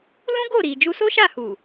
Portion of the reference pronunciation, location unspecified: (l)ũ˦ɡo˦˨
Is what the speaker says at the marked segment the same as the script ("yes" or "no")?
yes